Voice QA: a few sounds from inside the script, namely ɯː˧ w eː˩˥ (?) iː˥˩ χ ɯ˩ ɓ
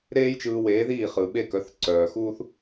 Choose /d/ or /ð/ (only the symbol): ð